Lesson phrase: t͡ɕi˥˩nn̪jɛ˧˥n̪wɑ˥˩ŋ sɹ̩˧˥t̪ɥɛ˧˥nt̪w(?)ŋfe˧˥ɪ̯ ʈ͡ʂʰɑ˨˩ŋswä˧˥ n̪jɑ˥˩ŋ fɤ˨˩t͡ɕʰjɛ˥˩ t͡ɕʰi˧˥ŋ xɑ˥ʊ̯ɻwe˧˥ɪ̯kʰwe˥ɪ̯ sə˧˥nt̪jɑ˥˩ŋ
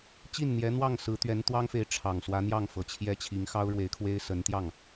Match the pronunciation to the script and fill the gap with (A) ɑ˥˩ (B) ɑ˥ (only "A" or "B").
B